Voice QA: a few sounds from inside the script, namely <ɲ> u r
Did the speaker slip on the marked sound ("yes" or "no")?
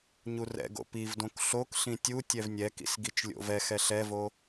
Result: no